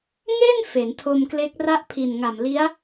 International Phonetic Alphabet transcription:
ŋ e˥˩ n f e˩˦ n tʰ o˧ m k l e˦˥ k̚ r a˦˥ ʔ pʰ i˨˩ n ŋ a˨˩ m l i˦˥ a̯

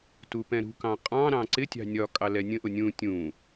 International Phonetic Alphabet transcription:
t u p ɛ̃ ɾ ṳ k ɑ̃ qʼ ɑ̃ ɾ ɑ̃ ǀ ɪ tʲ ɑ̤ nʲ ɒ kʼ ɑ l ɛ nʲ ə̃ ʔ ʊ nʲ ũ tʲ ũ

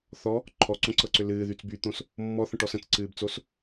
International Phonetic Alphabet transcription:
θ ɔ | ǃʰ ɔ ǀ õ ǀ ɤ ǀ ʏ l ɨː ð y t͡s b y t̪ õ s | mː ɔ θ ə̃ ʈ ɔ s ə̃ t͡s ǀ ɨː b t͡s o s

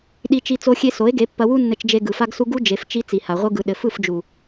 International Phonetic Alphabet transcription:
ɗ i˧ t͡ʃ i˧ t͡s o˧ xʲ e˧ s o˨˦ e̯ ɡ e˨˦ pː ɐ˧ w u˦ nː ɘ˧ t͡ʃ d͡ʒ e˧ ɡ ɯ˨ f a˦ ɡ s u˦ ɡ u˦ d͡ʒ e˧ f t͡ʃ i˧ t͡s i˨ h a˨ ʁʷ ɯ˧ ɡ ɯ˨ ɗ ɘ˨ f ɯ˦˨ f d͡ʒ u˨

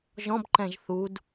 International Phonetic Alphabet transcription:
ʒ ɔ̃ b ǃ ɛ̃ ʒ θ u d

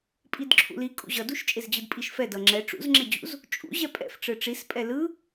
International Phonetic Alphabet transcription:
pʼ i d ǁʰ ṵ l i kʼ ṵ ʑ ʌ d u ʃ t͡ʃʼ e z d͡ʑ ɯ d pʼ i ʃ f ɛ d ʌ ŋ͡ǁ ɛ ʈ͡ʂ ṵ z ŋ͡ǁ e d͡ʑ ṵ z | t͡ʃʼ ṵ ʑ ɛ pʼ ɛ̰ f ʈ͡ʂ ɯ ʈ͡ʂ i s pʼ ɛ l ɯ

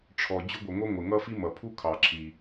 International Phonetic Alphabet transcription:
ʈ͡ʂʰ ɔ˩ d͡ʑ ʊ˥ ɡʷ ʌ˩ ŋʷ ʌ˥ ŋʷ ɪ˩ ŋ ʌ˥ f i˥ m ʌ˩ pʰ u˥ kʰ ɑ˩ ǁʰ i˩

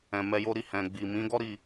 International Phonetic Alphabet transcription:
ɛ̃˨ m ɛ˧ j o˦ ɾ i˦˨ h ɛ̃˨ ɡ͡b i˨ m ĩ˨˦ ɡ ɔ˦ ɾ i˦˨

